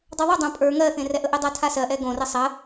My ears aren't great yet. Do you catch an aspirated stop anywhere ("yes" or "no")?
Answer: yes